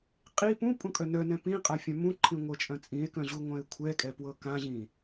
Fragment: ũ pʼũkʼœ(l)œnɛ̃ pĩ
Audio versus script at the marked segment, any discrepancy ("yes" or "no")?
yes